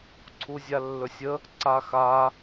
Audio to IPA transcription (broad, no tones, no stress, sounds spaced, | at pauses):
ǀʰ u zʲ a lː ɵ sʲ ə | ǀ a x a